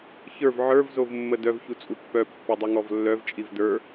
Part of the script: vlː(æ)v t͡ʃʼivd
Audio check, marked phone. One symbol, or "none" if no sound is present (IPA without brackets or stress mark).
œ